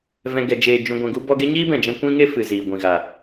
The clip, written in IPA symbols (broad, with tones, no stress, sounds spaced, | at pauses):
v ɛ̃˧ ɡ ɛ˧ d͡ʒ eː˧ d͡ʒ ũ˧ ɡʷ ɛ̃˧ ɡ u˦ b ɔ˦ ɡ e˦ ɲ iː˦ b ɛ̃˨ d͡ʒ ɛ̃˧ kʷ ĩ˦ ŋ e˦ f ɨ˨ z iː˨ ɡʷ ĩ˨ ɣ a˨